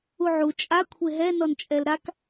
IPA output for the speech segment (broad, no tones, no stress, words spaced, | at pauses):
uʕu t͡ʃʼa kʷʰeɦɛ nɔnt͡ʃʼɛlɾak